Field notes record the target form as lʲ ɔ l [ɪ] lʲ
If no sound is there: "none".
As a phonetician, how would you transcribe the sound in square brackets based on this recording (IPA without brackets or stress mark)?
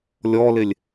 ɪ